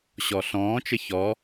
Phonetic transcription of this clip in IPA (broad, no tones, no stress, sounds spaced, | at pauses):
ɕ ɔ ɬ ɔ̃ː t͡ʃ ɘ ç ɔ